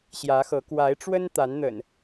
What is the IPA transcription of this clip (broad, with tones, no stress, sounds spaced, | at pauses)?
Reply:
ɕ j ä˨˦ x ɤ˨˦ k w a˨˦ ɪ̯ ʈ͡ʂ w ə˦ n t̪ a˨˦ n n̪ ə̰˨˩ n